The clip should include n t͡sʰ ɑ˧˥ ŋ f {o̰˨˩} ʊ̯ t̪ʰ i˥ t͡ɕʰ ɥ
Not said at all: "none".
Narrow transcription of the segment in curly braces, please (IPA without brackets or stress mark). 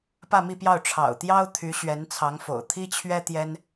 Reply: o̰˨˩